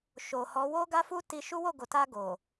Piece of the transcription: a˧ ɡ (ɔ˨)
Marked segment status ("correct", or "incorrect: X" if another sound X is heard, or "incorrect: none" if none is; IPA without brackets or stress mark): incorrect: o˨